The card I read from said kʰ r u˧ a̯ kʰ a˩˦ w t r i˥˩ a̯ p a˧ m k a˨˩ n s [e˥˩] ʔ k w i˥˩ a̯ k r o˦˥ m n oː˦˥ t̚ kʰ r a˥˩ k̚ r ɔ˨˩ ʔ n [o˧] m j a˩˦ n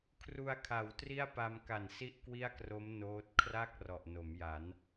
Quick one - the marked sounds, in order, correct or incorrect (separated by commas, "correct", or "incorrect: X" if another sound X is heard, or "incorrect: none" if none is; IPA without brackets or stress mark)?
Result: incorrect: i˥˩, incorrect: o˩˦